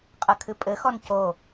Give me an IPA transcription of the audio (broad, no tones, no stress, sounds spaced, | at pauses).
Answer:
qʼ ɐ kʰ ɨ pʼ ɘ x ɔ n c o